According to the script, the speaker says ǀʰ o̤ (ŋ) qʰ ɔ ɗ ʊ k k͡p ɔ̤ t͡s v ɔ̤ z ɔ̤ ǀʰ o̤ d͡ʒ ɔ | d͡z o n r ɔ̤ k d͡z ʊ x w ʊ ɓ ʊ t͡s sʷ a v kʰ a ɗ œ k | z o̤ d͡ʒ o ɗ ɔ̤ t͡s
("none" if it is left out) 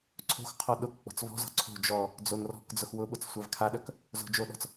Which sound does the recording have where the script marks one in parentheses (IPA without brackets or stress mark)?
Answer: x